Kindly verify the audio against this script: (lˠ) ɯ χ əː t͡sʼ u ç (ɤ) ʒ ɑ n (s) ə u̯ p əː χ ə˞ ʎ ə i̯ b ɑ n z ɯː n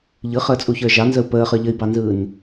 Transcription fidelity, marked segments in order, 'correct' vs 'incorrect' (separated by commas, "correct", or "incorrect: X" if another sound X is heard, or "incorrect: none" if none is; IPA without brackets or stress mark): incorrect: ʎ, incorrect: ə˞, incorrect: z